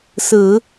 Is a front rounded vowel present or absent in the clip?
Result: absent